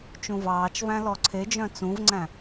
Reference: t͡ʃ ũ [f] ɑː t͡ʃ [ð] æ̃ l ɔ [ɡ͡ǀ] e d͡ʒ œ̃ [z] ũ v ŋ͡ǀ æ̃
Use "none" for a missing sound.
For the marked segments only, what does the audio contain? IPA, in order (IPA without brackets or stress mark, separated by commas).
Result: v, v, ǀʰ, t͡s